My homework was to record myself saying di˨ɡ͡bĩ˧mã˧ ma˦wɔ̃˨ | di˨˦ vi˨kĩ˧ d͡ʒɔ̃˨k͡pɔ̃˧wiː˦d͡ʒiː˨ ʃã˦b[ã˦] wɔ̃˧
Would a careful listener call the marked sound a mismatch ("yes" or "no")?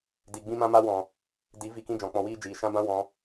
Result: no